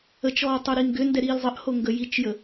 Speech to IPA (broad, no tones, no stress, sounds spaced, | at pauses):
ə t͡ʃ ɔː tˤ o ɾ i ŋ ɡ ʏ n d ɛ ɾ iː l zˤ ə ʔ h o ŋ ɡ ə j i t͡ʃ j ə